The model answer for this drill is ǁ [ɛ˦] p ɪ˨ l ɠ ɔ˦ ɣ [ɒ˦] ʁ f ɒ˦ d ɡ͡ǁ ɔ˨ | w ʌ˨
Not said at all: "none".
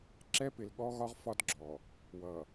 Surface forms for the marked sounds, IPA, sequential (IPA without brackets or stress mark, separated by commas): ɛ˦, ɒ˦